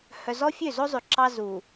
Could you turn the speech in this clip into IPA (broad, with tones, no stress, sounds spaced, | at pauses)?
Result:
h œ˨ z ɔ˦ fʲ ø˦˨ z o˦ zˤ ʉ˨ ǁ ɑ˦ z u˨